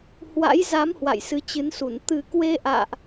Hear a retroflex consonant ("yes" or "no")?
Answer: no